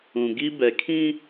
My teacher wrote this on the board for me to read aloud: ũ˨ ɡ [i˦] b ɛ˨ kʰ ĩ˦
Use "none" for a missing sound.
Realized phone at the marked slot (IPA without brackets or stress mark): i˦